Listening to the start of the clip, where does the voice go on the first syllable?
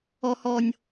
low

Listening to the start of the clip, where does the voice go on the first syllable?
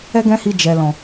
high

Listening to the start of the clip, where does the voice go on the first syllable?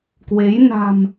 rising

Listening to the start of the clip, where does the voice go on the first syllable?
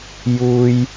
high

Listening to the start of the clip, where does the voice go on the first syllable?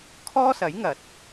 high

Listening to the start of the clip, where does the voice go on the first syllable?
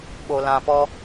low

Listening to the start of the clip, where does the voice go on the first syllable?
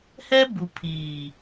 high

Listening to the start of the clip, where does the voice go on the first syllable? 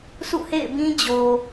falling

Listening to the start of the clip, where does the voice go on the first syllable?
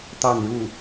falling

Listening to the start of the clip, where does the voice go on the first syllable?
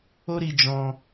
high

